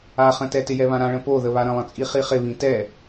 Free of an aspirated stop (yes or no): yes